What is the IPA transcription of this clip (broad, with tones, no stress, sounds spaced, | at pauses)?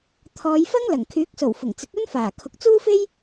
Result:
t̪ʰ ɔː˨˧ j f ɐ˥ ŋ l ɐ˨˩ ŋ kʰ yː˨˥ k̚ s o˨˩ w f ʊ˨˩ ŋ t͡s ɪ˨˥ k̚ ɵ˥ n f aː˨˩ kʰ ʊ˨ k̚ t͡s uː˥ f e˥ j